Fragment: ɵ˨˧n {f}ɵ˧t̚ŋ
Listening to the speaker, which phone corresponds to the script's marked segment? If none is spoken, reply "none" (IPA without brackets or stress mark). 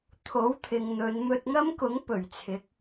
m